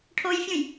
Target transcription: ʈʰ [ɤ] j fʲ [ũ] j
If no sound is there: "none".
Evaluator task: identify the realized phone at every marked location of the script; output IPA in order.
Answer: o, ũ

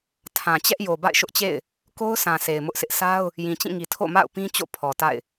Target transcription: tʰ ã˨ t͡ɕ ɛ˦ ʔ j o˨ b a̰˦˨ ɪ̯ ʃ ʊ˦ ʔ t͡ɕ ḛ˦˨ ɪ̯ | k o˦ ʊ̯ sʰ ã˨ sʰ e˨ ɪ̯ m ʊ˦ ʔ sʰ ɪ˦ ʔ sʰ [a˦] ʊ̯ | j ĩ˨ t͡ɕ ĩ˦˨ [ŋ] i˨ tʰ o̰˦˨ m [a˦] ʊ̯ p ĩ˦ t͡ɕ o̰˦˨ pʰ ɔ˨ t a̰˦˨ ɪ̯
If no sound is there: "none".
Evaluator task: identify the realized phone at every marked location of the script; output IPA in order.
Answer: a˦, ŋ, a̰˦˨

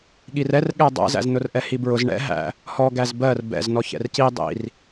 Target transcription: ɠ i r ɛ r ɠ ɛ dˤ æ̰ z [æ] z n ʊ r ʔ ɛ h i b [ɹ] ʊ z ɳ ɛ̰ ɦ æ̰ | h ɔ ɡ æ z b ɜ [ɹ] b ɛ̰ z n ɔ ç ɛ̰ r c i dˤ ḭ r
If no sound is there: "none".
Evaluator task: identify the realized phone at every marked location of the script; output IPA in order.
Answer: æ̰, ɹ, r

